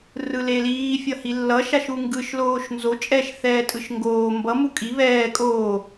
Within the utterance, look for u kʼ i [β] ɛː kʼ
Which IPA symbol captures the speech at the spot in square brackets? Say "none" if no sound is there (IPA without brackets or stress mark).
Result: β